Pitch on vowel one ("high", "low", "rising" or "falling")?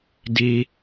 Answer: high